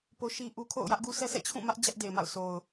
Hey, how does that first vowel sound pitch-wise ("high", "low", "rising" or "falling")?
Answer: high